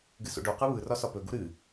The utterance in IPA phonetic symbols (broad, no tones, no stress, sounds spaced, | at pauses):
ɡ ɨ s o̰ ɖ o q ɯ β ɯ r ɒ s ɒ p ɵ ɡ u ɾ ɨ